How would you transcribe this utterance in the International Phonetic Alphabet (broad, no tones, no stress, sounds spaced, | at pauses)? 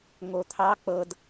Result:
ŋ o t̪ʰ ɑ k͡p ɤ d